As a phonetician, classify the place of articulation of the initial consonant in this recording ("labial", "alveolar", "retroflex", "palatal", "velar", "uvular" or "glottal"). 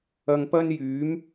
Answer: velar